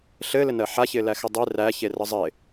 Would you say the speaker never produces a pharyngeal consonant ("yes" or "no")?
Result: no